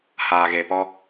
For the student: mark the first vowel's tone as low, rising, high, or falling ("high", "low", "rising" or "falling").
low